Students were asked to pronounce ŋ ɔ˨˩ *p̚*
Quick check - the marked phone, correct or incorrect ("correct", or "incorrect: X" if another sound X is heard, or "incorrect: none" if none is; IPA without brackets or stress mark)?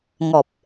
correct